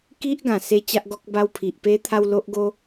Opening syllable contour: high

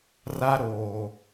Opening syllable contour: high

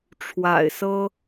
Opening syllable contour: low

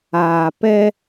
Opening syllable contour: low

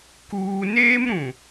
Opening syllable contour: high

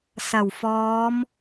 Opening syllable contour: low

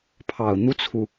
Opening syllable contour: low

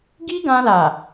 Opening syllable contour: high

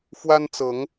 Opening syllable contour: high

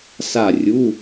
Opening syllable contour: falling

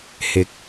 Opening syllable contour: rising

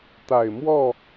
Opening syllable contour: low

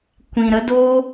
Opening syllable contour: low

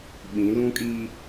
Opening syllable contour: rising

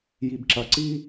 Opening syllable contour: low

